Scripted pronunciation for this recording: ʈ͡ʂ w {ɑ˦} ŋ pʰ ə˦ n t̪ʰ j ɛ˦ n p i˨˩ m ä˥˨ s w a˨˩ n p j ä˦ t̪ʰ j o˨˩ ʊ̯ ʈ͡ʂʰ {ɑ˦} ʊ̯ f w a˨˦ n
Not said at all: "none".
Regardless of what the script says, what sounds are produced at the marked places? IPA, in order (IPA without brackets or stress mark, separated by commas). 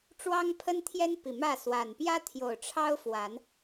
ɑ˦, ɑ˦